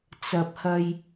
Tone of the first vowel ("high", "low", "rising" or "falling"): low